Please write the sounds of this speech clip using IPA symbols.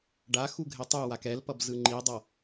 ɖ a x u ɡʱ e tˤ u w a k ɛ l p ʌ b z ɯ ŋ͡ǃ i dˤ ʌ

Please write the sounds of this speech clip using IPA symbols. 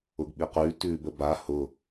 ʊ ɡ ɓ i q ʉ t ʉː b ə b a h ʊ

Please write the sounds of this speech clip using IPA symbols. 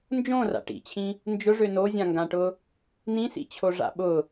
n d͡ʒ õ r a̰ ʈ ḭ t͡ɕʰ ĩ | n d͡ʒ ʊ ʐ ø n o zʲ ã ŋ ɡ ã ʈ ʊ | n ĩ s ḭ t͡ɕʰ o ʐ a̰ ɓ ʊ

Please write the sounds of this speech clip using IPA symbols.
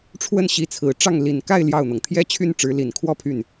ʈ͡ʂʰ w ə˥˩ n ɕ i˧˥ t͡sʰ ɹ̩˨˩ ʈ͡ʂ ɑ˥˩ ŋ l i˨˩ n k a˥˧ ɪ̯ l j ɑ˥˩ ʊ̯ n̪ ɤ˩ ŋ t̪ʰ j ɛ˥˧ t͡ɕʰ y˥˩ n ʈ͡ʂ ɻ̩˧˥ l i˨˩ n kʰ w ɔ˥˧ pʰ y˥˩ n

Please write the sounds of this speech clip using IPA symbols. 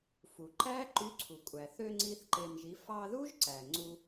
f u˩ ǃ æ˦˥ ǃ y˨˥ ǀʰ u˩ kʷʼ æ˩ θ ø˧ ŋ͡ǀ i˦˥ θ ǃ e˧ m ʒ i˨˥ f ɑ˧ ð u˦˥ ʒ ǀ æ˩ ŋ͡ǀ u˧

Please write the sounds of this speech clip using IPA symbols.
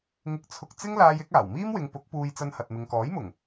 ŋ ɪ˧ k̚ t͡sʰ ʊ˧ k̚ t͡s ɪ˥ ŋ l aː˧ j ɪ˨˥ k̚ aː˨˩ w m iː˥ m w ɪ˨˧ ŋ p ʊ˨˥ k̚ p uː˧ j t͡s ɐ˧ n h ɐ˨ t̚ m ɪ˨ ŋ k ɔː˨˥ j m ʊ˨˩ ŋ

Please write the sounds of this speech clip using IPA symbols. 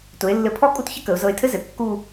t ʊ˩˧ ɪ̯ lː ɘ˧˩ pʰ ɔ˥˧ kʼ u˥ t ç ə˥ k ə˩˧ ʊ̯ z ɤ˧ ɪ̯ tʰ ɘ˥ z ɘ˩˧ kː u˥˧

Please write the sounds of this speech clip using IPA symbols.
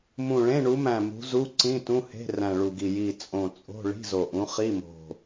m ũ˨˩ ɭ ẽ˧˥˧ ɳ u˨˦ m æ̃˨˩ m ṳ˨˦ z u˧˥˧ ǀ ĩ˧˥˧ t ũ˧˥˧ h e̤˧˥˧ r æ̃˨˩ ɭ u˨˩ ɡ i˨˩ j i˨˩ t͡sʼ õ˨˩ t͡sʼ o̤˧˥˧ ɭ i̤˧˥˧ z o˨˩ ʔ ũ˨˦ χ i˧˥˧ m o̤˨˩

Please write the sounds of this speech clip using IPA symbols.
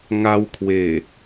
ŋ a˧ w kʰ w e˨˩

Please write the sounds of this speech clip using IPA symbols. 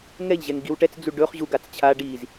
ŋ ɛ ʎ ʑ ɛ ŋ ɡ i w ʈ ɛ t͡s d͡z u ɖ ɵ χ ʑ u ɡ a t͡s t͡ɕʰ a ɖ i z

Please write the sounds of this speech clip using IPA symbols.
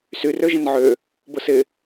s y r ø ʒ ə̃ n ʕ ø | b ʊ s ɪ

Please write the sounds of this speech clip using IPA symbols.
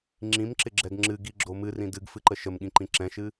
ŋ͡ǁ ĩ m ǁ ɪ ɡ͡ǁ ɛ ɡ ŋ͡ǁ ɨ ɡ i ɡ͡ǁ o m ɨ r ĩ d ɨ ɡ f ɨ ǃ ə ʃ ə m ɠ ĩ ǃ ĩ ǁ ɛ̃ ʃ ɨ

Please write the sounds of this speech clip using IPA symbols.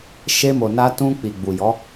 ʃ e˧ m o˨ n a˧ t ũ˧ k͡p i˨ ɡ͡b u˨ j ɔ˨˦

